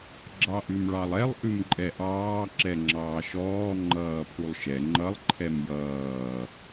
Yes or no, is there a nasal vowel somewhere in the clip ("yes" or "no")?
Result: no